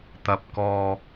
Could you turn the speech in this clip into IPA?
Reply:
t̪ ɐ˨ p̚ k ɔː˨

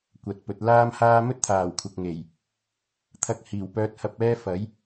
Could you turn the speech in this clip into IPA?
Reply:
kʷ ɐ˨˥ t̚ p ɵ˨˥ t̚ l aː˥ m h aː˥ m ɵ˥ t̚ t̪ʰ aː˨˩ w kʷʰ ɐ˨ k̚ ŋ e˨˩ j | t̪ʰ ɐ˧ k̚ h iː˨˩ w p œː˥ t̚ h ɐ˥ p̚ ɛː˥ f ɐ˨˥ j

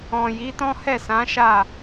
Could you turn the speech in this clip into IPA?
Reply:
ɔ̃˨ j i˨˦ t ɔ̃˦ h ɛ˦˨ s ã˨˦ ʃ a˦˨

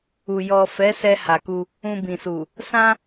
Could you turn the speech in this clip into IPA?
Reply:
u˨ j ɔ˨ f ɛ˨˦ s ɛ˧ h a˨ k u˧ | ũ˧ b ĩ˨ s u˨ | s ã˦

